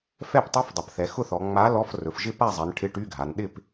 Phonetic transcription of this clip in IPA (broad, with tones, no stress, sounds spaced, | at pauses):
f ɛ˥˨ p tˤ y˧˥˧ f dˤ ʊ˩˧ p θ ɛ˩˧ x ʊ˥˨ θ ɔ˩˧ ŋ͡m a˨˥ l ɔ˧˥˧ f r ɵ˩˧ f ʒ ɪ˥˨ p a˥˨ zˤ ɛ˩˧ n ʈʰ ɪ˧˥˧ ʈ y˧˥˧ ɡʱ a˩˧ n ɗ ɪ˥˨ p